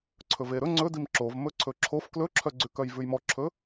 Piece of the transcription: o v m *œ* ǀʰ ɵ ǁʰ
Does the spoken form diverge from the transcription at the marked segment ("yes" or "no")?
yes